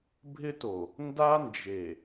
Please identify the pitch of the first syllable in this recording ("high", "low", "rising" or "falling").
high